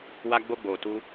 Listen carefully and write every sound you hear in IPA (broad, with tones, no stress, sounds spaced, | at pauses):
w a˧ ɡ͡b o˧ ɡ͡b o˨ t u˧